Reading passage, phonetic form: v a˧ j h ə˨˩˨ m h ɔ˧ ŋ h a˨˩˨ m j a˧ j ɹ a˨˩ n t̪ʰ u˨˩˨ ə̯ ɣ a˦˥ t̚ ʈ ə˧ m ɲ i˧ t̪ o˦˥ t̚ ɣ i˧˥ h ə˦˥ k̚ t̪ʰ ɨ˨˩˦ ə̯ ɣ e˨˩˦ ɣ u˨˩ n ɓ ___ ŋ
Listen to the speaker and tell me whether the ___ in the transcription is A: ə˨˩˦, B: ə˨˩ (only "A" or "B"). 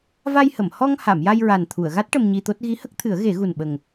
B